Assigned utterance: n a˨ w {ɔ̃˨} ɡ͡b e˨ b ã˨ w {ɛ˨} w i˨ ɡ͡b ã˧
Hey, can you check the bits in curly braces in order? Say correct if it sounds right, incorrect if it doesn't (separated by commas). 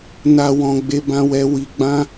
correct, correct